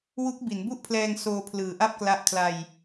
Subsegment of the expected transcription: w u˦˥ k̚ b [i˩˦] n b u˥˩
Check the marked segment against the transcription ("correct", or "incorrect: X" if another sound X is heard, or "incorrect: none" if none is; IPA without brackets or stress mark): correct